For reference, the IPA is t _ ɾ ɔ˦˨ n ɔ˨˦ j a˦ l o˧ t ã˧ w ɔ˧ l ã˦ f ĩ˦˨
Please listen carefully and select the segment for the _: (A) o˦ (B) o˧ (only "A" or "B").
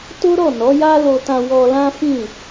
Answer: A